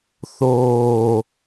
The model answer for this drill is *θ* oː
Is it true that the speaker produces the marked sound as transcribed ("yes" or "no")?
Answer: yes